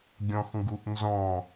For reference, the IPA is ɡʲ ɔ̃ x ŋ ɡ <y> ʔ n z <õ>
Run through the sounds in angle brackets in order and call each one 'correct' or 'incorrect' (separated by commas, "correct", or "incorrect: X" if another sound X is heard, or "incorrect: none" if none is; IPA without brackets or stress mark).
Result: incorrect: u, incorrect: ɔ̃